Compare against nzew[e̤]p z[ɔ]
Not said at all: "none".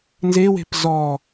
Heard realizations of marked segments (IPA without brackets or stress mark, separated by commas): e̤, ɔ